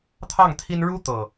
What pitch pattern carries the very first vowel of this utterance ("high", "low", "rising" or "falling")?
falling